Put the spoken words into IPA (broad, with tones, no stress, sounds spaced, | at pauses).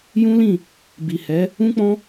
j ũ˦ l ĩ˦˨ | b i˨ h ɛ˨˦ | ũ˦ k͡p ɔ̃˦